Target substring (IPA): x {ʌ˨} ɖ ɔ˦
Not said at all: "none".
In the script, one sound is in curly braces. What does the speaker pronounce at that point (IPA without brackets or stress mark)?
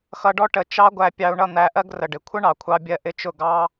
ʌ˧